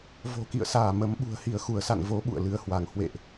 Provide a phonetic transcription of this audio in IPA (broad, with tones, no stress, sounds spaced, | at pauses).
v o̤˨˩ k ḭ˧˨ ə̯ s aː˧˩ m ə˨˦ m ɓ ṳ˨˩ ə̯ h i˧˩ ə̯ x u˧˩ ə̯ s a̰˧˨ n v o˨˦ ɓ ṵ˧˨ ə̯ l ɨ˨˦ ə̯ h w a˧˩ ŋ h w ḛ˧˨ ʔ